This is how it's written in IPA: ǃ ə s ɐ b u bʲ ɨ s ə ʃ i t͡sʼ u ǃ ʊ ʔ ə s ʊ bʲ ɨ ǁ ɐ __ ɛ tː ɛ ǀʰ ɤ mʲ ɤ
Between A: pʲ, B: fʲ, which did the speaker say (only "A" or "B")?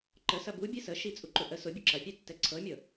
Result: A